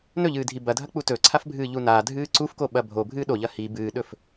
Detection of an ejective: absent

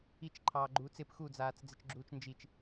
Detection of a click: present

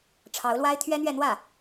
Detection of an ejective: absent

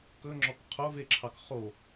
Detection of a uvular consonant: present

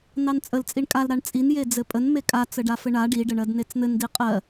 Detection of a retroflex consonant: present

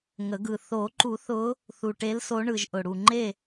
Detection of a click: present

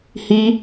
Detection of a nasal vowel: absent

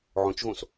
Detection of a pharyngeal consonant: present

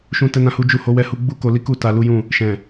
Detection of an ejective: absent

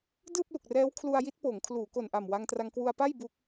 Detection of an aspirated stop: present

